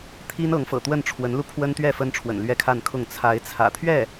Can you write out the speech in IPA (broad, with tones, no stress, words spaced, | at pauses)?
t̪ʰi˥nɤ˧˥ŋ fɤ̰˨˩t̪wə˥˩nʈ͡ʂʰwə˧˥nlu˧ pʰwə˥nt̪ɥɛ˥˩ fə˥nʈ͡ʂʰwə̰˨˩n lɥɛ˥kʰa˥˧nkʰʊ˥˩ŋ t͡sʰa˧˥ɪ̯t͡sʰä̰˨˩ t̪ʰɥɛ˥˩